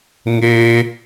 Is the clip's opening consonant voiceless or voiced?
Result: voiced